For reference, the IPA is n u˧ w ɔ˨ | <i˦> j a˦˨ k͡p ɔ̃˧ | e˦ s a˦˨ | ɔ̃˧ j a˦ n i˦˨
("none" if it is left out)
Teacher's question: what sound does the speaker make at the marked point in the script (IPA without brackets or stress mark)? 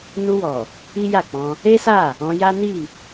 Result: i˦